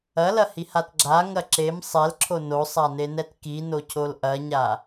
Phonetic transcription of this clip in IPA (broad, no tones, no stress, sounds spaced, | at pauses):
ɐ l ɐ h i h a t ɡ͡ǁ a ŋ ɐ ǁ e m sˤ ɛ l ǁʰ o n o sˤ a n e n ɛ t k i n o cʰ o l ʔ ɐ ɲ a